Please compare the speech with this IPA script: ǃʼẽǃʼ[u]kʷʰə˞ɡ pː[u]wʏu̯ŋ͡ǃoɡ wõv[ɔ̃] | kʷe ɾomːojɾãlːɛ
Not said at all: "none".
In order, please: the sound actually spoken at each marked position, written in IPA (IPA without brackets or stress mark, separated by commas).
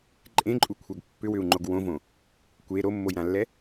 u, ʏ, õ